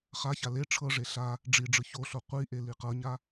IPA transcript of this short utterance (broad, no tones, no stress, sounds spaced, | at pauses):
χ a ç a l e ʈ͡ʂʰ ɤ ʐ e ɬ a | ɖ͡ʐ i ɖ͡ʐ ɯ ç o ɬ o qʷ i ʔ e l i q ɤ ɲ a